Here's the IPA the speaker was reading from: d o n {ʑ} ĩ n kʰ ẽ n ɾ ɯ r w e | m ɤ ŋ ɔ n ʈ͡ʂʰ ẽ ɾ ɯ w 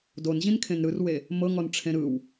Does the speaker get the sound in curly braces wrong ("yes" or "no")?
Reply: no